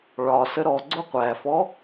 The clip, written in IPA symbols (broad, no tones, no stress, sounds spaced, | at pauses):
ɭ ɒ s ə ɾ ɔ ɡ͡ǀ ʊ qʷ æ f ɔ